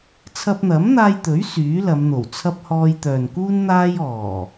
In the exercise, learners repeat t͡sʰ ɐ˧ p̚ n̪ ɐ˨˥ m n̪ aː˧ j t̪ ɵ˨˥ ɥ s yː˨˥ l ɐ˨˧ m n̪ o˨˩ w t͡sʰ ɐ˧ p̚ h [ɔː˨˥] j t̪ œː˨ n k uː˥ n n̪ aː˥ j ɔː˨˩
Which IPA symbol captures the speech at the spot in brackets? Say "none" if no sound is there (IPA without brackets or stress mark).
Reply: ɔː˧